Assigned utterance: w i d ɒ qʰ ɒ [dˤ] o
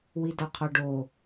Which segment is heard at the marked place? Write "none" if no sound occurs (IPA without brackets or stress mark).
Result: ɖ